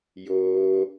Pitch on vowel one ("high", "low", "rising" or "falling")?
high